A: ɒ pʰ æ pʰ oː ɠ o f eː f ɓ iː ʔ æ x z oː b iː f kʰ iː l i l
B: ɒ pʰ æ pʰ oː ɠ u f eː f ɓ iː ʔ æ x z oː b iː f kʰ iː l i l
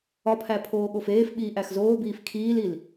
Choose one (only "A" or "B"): A